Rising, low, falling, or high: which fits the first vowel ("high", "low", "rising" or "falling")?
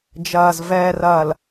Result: low